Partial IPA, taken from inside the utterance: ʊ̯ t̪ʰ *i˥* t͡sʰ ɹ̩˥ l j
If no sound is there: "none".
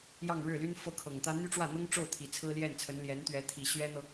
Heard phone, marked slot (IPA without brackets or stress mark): i˨˩